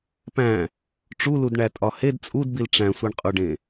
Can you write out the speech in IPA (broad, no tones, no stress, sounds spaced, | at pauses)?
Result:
p æ̃ | ʈ͡ʂ u l u d ɳ æ tʼ ɒ h e d t͡sʼ u d b i l ʈ͡ʂ æ̃ sʷ i ɳ qʼ u ɖ ẽ